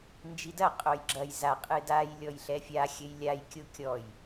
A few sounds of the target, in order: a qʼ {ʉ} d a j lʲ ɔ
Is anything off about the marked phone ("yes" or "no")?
yes